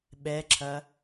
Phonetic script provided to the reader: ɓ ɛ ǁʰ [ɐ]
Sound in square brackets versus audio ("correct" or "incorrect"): correct